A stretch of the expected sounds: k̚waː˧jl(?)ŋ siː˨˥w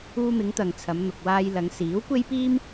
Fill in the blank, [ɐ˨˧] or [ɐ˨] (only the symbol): ɐ˨˧